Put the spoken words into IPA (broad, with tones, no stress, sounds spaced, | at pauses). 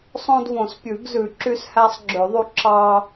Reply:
sˤ õ˦ d v õ˨˩˦ s pʲ ʉ˨˩˦ ɡ z ʉ˨˩˦ ǁ y˦ s h æ˦ sˤ ɡ͡ǁ ø˨˩˦ ðˤ u˦ ǁ ɑ˦